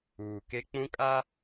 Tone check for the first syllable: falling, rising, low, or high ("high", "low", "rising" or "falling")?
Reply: low